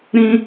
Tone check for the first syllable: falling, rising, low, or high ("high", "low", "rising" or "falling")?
high